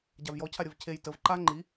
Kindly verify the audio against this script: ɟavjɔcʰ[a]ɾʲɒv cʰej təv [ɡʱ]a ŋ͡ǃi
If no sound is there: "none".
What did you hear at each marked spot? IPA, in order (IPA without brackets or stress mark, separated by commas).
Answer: a, ǃ